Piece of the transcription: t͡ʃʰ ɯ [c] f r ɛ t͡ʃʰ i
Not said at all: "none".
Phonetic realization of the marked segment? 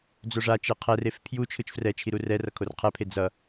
t͡ʃ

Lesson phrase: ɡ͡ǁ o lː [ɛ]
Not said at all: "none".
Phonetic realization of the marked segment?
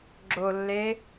e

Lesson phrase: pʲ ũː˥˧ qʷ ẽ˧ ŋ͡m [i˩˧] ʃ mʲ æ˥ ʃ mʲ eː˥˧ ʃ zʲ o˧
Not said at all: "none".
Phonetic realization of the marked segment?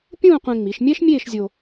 i˩˧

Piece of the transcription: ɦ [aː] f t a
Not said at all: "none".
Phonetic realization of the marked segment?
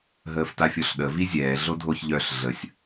əː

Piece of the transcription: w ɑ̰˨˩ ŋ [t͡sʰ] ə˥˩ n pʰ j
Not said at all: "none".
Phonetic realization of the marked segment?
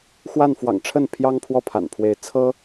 ʈ͡ʂʰ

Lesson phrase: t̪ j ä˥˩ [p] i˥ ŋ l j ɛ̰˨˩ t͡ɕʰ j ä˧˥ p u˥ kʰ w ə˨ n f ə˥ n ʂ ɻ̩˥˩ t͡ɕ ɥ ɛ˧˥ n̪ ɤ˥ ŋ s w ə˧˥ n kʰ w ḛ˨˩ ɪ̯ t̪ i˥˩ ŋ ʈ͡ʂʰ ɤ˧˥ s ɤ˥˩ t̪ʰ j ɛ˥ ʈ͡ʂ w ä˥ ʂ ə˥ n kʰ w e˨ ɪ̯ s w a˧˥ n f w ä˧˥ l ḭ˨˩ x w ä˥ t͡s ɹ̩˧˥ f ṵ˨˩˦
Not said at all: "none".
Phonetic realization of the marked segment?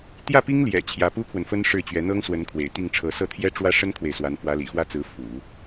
p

